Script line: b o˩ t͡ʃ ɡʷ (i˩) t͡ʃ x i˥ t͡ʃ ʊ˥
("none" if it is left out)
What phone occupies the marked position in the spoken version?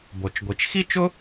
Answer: i˩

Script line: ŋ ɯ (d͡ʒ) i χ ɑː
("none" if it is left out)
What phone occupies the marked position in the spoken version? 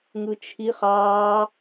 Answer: t͡ʃʰ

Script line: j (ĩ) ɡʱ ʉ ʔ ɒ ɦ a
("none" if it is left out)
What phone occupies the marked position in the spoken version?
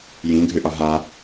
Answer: ĩ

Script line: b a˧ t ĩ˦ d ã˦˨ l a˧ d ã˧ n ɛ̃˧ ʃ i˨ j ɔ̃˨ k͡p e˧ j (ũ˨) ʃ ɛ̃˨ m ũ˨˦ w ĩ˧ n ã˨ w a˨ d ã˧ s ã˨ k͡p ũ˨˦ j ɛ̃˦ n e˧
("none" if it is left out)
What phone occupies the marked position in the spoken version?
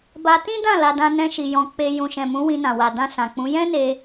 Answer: ũ˨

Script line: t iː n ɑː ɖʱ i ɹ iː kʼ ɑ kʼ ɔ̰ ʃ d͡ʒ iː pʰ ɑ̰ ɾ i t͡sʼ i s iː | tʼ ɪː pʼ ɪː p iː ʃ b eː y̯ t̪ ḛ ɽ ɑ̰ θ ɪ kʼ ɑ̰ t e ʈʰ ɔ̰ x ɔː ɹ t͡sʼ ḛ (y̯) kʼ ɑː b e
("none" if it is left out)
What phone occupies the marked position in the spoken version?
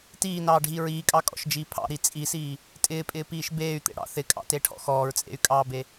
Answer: y̯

